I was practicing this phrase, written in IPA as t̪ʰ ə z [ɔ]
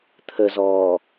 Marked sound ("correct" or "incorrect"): incorrect